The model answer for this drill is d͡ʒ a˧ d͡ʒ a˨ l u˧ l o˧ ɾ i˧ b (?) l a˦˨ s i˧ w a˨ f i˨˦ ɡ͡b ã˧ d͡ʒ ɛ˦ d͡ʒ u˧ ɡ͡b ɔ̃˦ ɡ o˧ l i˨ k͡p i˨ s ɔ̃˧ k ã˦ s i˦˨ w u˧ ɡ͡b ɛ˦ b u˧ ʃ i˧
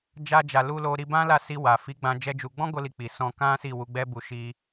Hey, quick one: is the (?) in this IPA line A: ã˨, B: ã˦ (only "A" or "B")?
B